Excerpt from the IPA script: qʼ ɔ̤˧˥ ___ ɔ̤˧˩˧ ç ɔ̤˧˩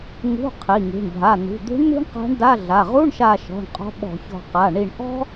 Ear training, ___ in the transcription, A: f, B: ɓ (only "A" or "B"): B